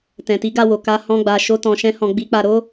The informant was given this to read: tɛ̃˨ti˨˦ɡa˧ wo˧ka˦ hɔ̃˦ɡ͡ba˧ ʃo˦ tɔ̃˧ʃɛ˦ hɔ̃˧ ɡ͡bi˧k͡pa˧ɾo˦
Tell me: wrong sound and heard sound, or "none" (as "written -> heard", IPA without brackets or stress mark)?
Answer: ɛ˦ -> ɛ̃˦